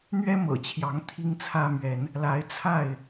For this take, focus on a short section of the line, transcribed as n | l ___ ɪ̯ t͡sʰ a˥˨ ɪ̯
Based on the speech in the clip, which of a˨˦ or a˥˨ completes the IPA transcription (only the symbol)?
a˨˦